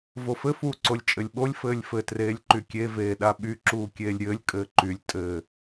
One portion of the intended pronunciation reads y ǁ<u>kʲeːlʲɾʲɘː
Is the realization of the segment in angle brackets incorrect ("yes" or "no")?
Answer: yes